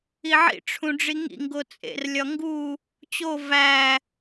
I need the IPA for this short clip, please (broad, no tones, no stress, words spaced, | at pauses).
iʕḭ ʈ͡ʂʰũɖ͡ʐiŋḭ ŋɡot͡sʼḛr lʲɒŋɡu | t͡ɕo væ